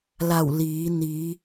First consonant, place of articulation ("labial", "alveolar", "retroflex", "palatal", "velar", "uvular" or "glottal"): alveolar